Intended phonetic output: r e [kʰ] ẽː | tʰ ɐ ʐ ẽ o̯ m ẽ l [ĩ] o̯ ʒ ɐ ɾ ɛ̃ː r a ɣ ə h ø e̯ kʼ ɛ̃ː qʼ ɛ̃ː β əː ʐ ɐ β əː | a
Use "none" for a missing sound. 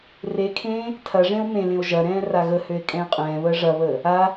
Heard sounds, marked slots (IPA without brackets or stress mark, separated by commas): kʰ, ẽ